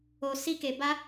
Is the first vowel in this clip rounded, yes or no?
yes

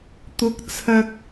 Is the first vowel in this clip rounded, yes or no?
yes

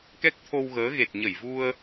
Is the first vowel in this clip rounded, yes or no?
no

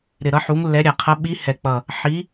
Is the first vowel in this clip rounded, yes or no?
no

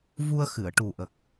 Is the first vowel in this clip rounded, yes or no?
yes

